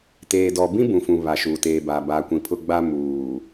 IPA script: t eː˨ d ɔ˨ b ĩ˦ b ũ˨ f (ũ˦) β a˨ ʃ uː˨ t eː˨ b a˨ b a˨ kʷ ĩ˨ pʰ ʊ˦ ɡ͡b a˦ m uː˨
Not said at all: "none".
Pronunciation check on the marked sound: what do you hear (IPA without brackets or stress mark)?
ũ˨